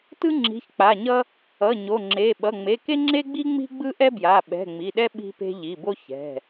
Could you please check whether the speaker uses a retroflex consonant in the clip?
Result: no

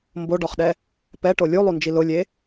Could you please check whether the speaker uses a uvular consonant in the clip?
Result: yes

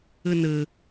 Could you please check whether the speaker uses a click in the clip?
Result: no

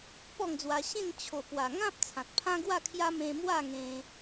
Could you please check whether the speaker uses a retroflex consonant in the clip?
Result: no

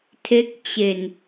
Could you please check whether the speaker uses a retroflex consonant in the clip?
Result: no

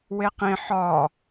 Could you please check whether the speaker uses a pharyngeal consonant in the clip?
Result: yes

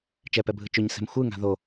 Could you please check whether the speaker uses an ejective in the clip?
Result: no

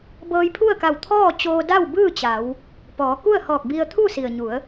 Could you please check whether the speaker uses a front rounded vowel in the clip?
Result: no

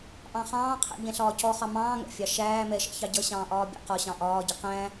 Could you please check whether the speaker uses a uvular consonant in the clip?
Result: yes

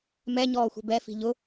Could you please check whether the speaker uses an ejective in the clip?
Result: no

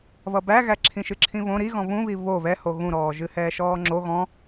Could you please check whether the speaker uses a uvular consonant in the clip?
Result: no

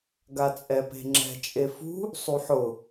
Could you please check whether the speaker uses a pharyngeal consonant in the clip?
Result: yes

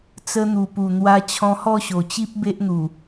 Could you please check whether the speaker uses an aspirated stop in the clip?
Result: yes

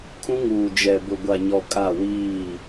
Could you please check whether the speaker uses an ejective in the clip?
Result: yes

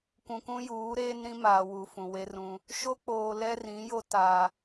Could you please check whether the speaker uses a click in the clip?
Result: no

